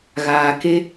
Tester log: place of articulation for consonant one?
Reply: velar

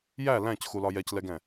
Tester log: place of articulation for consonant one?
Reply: palatal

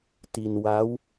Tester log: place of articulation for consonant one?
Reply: alveolar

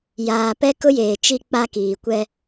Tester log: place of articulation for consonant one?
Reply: palatal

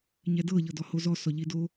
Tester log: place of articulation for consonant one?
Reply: palatal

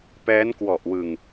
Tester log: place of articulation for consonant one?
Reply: labial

